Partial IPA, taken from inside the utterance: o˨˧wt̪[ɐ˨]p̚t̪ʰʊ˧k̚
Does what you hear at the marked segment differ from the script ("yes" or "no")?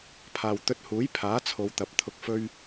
no